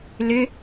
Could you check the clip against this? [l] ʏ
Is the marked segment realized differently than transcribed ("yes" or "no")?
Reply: no